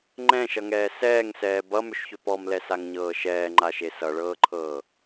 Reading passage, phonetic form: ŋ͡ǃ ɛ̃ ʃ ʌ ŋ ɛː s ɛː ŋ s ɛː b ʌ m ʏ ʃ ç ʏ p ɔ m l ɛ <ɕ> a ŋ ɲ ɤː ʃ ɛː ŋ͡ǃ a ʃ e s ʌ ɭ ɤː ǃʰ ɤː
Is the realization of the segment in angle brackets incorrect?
yes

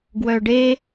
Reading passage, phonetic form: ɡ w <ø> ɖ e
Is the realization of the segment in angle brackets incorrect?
yes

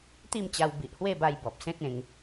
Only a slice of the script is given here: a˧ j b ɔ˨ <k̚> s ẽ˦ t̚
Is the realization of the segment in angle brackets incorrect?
yes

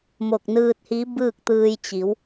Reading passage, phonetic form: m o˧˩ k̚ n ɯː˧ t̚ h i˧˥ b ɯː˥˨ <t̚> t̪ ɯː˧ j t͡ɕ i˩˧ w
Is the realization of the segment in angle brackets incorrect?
yes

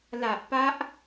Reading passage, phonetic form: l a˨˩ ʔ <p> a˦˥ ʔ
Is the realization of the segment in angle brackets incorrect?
no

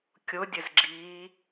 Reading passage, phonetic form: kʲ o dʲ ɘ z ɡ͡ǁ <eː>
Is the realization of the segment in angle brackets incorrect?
yes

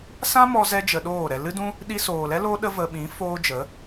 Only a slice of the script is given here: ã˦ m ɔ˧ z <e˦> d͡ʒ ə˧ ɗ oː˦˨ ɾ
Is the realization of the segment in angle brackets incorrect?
yes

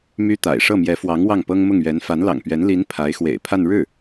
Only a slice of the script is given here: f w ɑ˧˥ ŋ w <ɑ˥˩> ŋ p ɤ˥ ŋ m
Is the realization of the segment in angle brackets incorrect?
no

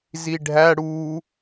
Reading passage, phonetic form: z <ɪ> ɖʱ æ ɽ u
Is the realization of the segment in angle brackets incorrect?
yes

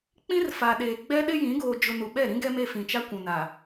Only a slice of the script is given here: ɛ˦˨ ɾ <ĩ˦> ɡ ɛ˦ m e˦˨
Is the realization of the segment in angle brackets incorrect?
no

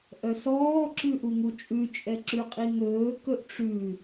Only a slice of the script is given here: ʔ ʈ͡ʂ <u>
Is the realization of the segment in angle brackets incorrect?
yes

